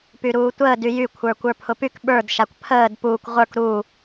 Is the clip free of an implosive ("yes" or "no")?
no